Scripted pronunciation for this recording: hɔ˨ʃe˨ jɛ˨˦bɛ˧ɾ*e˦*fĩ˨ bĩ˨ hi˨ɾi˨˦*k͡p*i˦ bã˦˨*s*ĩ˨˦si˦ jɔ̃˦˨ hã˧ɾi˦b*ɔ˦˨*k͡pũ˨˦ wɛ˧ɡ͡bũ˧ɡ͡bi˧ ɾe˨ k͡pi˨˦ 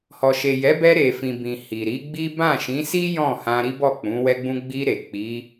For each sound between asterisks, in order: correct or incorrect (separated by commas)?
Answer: incorrect, incorrect, incorrect, correct